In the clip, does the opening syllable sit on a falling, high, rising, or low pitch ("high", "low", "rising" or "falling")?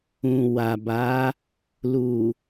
low